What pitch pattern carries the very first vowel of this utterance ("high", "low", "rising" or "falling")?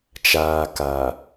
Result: low